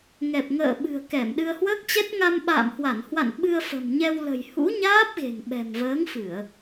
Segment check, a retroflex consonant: absent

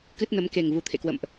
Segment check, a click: absent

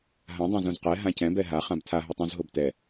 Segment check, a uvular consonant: present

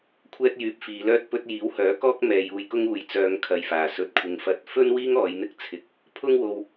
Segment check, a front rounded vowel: present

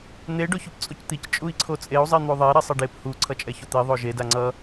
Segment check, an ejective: present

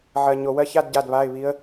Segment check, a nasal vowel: absent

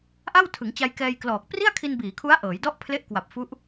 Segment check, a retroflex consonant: absent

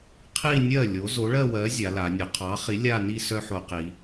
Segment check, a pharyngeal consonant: present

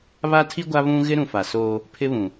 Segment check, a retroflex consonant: absent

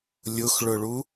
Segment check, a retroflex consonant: present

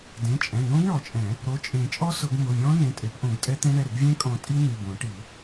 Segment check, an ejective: present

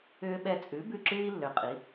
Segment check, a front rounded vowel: present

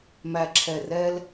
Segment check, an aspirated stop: present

